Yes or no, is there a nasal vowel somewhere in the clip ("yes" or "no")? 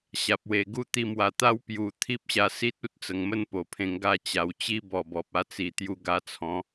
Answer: yes